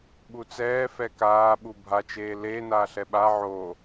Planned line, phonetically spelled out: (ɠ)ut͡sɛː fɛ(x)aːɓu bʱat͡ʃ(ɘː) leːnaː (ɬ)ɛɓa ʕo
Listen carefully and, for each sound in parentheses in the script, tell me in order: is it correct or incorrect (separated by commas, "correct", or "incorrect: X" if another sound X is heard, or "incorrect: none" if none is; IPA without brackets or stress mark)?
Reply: incorrect: ɓ, incorrect: k, incorrect: eː, correct